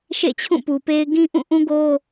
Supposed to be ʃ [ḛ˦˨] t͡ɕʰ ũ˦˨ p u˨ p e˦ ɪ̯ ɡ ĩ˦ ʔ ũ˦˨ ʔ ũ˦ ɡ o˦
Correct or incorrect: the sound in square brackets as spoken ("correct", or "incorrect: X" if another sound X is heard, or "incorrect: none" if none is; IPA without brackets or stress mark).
correct